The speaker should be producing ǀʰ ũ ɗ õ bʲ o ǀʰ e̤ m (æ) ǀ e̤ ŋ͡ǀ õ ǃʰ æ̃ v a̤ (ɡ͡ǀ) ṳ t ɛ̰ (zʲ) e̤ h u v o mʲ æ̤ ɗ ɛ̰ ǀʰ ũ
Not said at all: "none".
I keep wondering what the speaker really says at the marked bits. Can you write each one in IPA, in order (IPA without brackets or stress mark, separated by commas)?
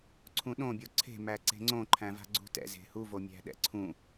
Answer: æ, ɡ͡ǀ, z